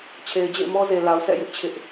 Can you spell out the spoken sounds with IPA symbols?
t͡ɕʰ e˨ ɪ̯ d͡ʑ ḛ˦˨ ɪ̯ m ɔ˦ z e˨ l a˨ ʊ̯ s ɛ̰˦˨ j ɪ˦ ʔ t͡ɕʰ ɪ˦ ʔ

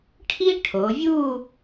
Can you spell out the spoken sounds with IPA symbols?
ʈʰ i˥ ʈʰ o˩˧ vʲ u˥˧

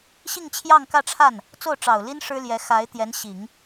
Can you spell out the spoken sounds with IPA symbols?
ɕ i˥˧ ŋ t͡ɕʰ j ɑ˥˧ ŋ k ä˥˧ ʈ͡ʂʰ a˥˩ n | t͡s o˥˩ ʊ̯ ʈ͡ʂ ɑ˨˩ ʊ̯ l i˥ n ʂ ɻ̩˥ l j ɛ˧˥ x a˧˥ ɪ̯ t̪ j ɛ˧˥ n ɕ i˨˩˦ ŋ

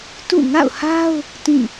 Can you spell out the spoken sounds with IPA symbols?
t ṵ˦˨ ŋ a̰˦˨ ʊ̯ h a˦ ʊ̯ | t ĩ˦˨

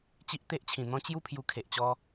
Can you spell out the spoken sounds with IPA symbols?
t͡ɕ i˦ ʔ t̪ e˦ ʔ t͡ɕʰ ĩ˨˩ n̪ ɔ̃˦ t͡ɕ j u˥˧ pʰ j u˧ kʰ e˨ ʔ t͡ɕ ɔ˧

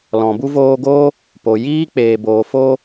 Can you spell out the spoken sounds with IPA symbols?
l ɔ̃˨ b u˦ v oː˧ ɡ oː˦ | p o˨ j iː˦ k͡p eː˨ b oː˨ f oː˧

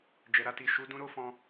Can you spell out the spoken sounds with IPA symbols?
d͡ʒ ɛ˨ ɾ a˧ t i˨ ʃ u˨˦ d ũ˧ ɾ o˦ f ɔ̃˧

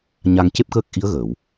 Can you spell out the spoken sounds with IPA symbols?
ɲ a˧ ŋ c e˦˥ p̚ k əː˦˥ k̚ ʔ i˧˥ ə̯ ɣ əː˨˩˨ w

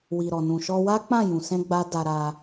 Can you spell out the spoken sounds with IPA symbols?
w i˨ ɾ ɔ˨ n ũ˨ ʃ ɔ˧ w a˦ k͡p ã˦˨ j ũ˨ s ɛ̃˧ ɡ͡b a˦ d a˧ ɾ a˧

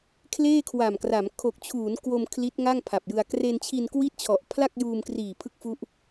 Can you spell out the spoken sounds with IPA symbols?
kʰ l eː˥˩ kʰ w a˨˩ m k r a˩˦ m kʰ o˨˩ k̚ t͡ɕʰ uː˩˦ n k w o˧ m kʰ l i˦˥ t̚ ŋ a˥˩ ŋ pʰ a˨˩ p̚ j ɯ˧ a̯ k r e˧ n t͡ɕʰ i˧ n k w i˦˥ t̚ t͡ɕʰ ɔ˨˩ ʔ pʰ l a˥˩ k̚ j uː˧ m k r iː˨˩ pʰ ɯ˦˥ k̚ f u˦˥ ʔ

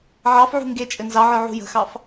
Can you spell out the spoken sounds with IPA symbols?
ʕ ɑ f ʕ ṳ ŋ ɡ e t͡ʃʼ ɘ n z ɑ ʕ ə˞ ʕ ṳ j ə̤ x ɑ f

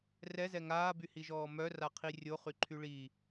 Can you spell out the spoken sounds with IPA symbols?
r ɛ z ɛ ŋ aː b y h i ʒ ɔː m œ r a qʰ i rʲ o χ y ǃʰ y ɭ i

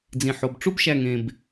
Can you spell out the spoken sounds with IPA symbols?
d͡z ĩ˧ ħ o˧ b ʈ͡ʂ u˦ b ʃ æ˧ ŋ ẽ˧ b

